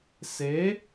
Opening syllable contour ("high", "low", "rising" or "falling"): rising